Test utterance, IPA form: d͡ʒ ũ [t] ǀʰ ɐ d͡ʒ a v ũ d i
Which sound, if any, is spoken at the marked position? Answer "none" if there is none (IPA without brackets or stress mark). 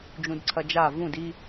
d